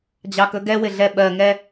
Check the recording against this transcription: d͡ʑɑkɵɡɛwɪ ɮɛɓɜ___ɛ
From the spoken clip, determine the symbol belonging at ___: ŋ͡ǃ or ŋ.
ŋ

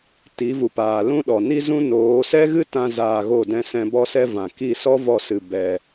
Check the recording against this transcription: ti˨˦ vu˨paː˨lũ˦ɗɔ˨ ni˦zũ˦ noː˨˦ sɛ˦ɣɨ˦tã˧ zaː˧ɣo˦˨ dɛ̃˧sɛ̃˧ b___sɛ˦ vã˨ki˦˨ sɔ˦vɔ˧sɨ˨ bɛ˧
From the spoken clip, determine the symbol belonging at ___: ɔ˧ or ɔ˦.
ɔ˦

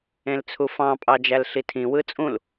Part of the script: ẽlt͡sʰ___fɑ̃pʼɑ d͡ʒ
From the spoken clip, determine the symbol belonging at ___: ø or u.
u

